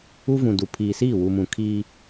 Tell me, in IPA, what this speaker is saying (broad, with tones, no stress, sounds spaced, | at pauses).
u˦ v ũ˨ d u˨ pʰ iː˨ s iː˦˨ w u˨ m ũ˨ kʰ iː˦